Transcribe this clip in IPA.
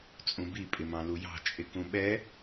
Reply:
t͡sʼũbipʼɪmɑ̃ lujɑ̤ t͡ʃʼɪkũɓɛ

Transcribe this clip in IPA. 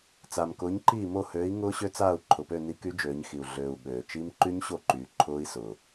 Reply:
t͡sa˨mkʊː˨˦ɲǃiː˦˨mo˦˨ høː˨˦i̯ ŋʊː˦˥ɕø˦˥ t͡saː˦˨u̯ǃʰʊ˨pø˦˨ ni˨˦ky˨˦ d͡ʒøː˨˦ɲxi˨u̯ ɮøː˨u̯ ɓøː˨ t͡ʃi˦˥m ǃy˦˥ɲɕo˦˨ǃyː˨ ǃʰʊː˦˥i̯sʊː˨

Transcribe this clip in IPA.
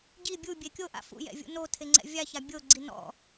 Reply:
ɟi bʲubʲe kʲoʔa̰ fṵjɛ̰vʲṵ notʰeŋ͡ǀɛ̰ vʲaça bʲoɡ͡ǀi nɔ̰

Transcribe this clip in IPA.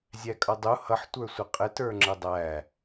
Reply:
zʲækʼʌdˤu hʌħ tʷə˞sʷɪqʼɪ tə˞ŋ͡ǁɪdˤæ

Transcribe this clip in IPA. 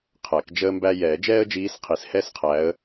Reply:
qʰæ˨˩˦kd͡ʒəː˦mbæ˦ jɛː˨˩˦d͡ʒɛː˦ə̯d͡ʒiː˨˦s qʰi˨˩˦shɛː˦sqʰæː˨˦ə̯

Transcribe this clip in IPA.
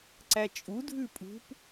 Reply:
ǀæt͡ʃʼudʱʉ pʼṳp

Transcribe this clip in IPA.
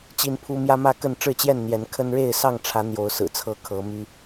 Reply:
t͡ɕi˦npʰu˦ mjä˦mä˥˨kə˥˨n ʈ͡ʂɻ̩˥˨t͡ɕjɛ˥˨n n̪jɛ˨˦nkʰə˦n ɻe˥˨ɪ̯sɑ˥˨ŋ ʈ͡ʂʰä˨˦n̪jo˨˦ʊ̯sɹ̩˨˩ t͡sʰɤ˦kʰɤ˨˦my˦

